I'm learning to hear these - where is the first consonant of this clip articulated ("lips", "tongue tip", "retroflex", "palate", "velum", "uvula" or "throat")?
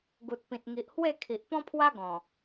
velum